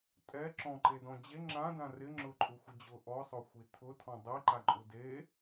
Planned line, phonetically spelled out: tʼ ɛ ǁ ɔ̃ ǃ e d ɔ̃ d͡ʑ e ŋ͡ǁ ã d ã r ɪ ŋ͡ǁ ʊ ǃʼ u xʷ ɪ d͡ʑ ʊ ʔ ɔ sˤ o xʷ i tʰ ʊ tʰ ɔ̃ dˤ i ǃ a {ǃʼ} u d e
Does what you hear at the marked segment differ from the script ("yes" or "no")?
no